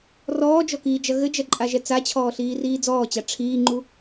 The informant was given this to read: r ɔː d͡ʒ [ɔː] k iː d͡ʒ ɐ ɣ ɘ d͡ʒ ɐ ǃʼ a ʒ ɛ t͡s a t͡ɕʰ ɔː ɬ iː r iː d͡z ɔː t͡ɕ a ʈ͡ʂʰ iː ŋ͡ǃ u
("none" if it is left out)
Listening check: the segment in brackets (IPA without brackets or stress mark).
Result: ɔ